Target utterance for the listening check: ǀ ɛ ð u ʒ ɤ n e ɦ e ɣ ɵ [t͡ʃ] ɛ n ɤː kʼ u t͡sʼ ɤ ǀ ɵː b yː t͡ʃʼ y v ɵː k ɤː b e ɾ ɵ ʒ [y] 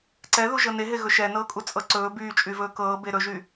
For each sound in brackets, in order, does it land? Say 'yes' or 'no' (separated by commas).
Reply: no, yes